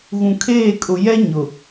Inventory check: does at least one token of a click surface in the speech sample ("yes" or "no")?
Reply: no